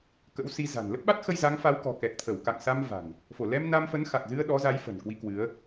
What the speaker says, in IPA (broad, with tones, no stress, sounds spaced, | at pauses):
k ə̰˧˥ w s i˨˦ z a̤˨˩ n l ə˦˥ p̚ ɓ a˦˥ t̚ x ə˧ j z a˨˦ ŋ f a˨˦ w k ɔ̤˨˩ k ɛ˨˩ k̚ t̪ʰ ə˧˩ w k a̰˧˨ ŋ s a˧ m v a̤˨˩ n | f o˧˩ l ɛ˧ m n a˧ m f ə˨˦ n x a˨˩ k̚ z ɨ˧ ə̯ ɗ ɔ˨˦ z a˨˦ j f ə̤˨˩ n k w i˧ k w ɨ˨˦ ə̯